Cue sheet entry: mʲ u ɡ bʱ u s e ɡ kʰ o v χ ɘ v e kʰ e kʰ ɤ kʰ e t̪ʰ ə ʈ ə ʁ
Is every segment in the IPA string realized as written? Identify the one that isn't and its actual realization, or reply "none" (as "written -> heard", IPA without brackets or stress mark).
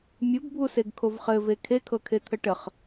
ʁ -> χ